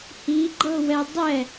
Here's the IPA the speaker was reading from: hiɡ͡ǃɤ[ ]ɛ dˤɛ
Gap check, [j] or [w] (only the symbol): w